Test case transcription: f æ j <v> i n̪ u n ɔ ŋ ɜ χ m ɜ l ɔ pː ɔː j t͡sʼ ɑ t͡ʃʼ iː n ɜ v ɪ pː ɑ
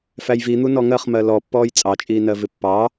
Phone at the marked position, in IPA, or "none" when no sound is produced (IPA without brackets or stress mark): v